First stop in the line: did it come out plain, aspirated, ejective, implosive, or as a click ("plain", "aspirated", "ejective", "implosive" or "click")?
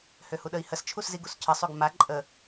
implosive